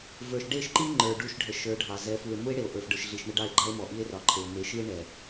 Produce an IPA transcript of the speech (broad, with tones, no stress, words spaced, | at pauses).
və˞˨ʃɖe˦˨ʃǃi˦ ŋ͡ǃə˞˨ɖu˦˨ʃɖʱə˨ ʃə˞˨˦ɖʱɑ˨ zɛ˨˦fu˨e̯ mu˦e̯ ɽe˨o̯ ʔə˞˨fɖə˞˨ʃɮi˨ʃ ɳə˦ɖɑ˦˨e̯ɡ͡ǃɑ˦e̯mɔ˨ ʔi˦e̯rɒ˨ǃʰe˨o̯ me˨˦ʃi˦e̯ ɳɛ˨